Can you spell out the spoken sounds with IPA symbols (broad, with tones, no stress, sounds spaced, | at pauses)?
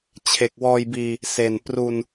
t͡ɕʰ e˨˩ k̚ w ɔː˧ j b iː˧ | s e˨˩ n p r u˧ n